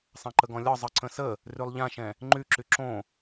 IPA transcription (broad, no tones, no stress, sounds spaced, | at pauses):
sˤ ã ǃ ə ɡ ɔ̃ lʲ ɒ zˤ ɤ ǀ ə̃ s ə | r y lˠ ʎ ã ʃ ɛ̃ | ŋ͡ǃ y ǁ y ǁ õ